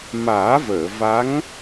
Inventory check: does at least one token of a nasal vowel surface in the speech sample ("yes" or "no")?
no